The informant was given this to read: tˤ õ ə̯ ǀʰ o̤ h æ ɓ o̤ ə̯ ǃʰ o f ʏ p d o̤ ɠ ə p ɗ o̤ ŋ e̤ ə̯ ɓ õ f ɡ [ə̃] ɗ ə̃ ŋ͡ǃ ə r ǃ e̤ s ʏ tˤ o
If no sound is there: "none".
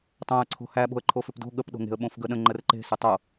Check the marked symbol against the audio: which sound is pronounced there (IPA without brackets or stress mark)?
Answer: ə